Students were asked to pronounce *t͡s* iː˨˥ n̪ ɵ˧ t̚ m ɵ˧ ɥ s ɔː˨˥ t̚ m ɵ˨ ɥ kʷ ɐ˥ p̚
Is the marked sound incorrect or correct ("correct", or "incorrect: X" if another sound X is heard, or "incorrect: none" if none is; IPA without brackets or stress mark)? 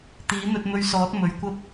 incorrect: t̪